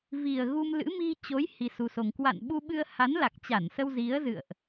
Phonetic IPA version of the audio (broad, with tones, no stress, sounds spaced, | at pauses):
v i˨˩ ə̯ ɣ u˧ m l ɨ̰˧˥ m i˧ t͡ɕ o˨˦ j h i˧ s u˧ s o˧ ŋ k w a̰˧˨ n ɓ u˧ ɓ ɨ˧ ə̯ h a˨˦ n l a˨˩ k̚ t͡ɕ a˧˩ n s ə˧ w z i˨˦ ə̯ z ɨ̰˧˨ ə̯ ʔ